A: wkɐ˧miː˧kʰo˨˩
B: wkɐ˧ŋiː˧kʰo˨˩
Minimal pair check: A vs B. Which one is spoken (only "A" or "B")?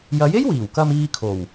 A